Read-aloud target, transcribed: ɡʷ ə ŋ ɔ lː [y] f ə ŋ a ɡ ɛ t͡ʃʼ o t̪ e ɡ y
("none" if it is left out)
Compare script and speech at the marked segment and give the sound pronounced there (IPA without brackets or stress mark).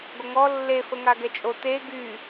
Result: e